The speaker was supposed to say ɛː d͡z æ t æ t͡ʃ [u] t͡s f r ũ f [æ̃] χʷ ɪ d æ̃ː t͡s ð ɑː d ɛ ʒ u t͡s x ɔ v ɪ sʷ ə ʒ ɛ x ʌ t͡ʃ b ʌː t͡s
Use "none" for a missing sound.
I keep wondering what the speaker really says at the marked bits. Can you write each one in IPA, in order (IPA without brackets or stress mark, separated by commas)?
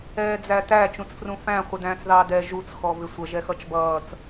ũ, æ̃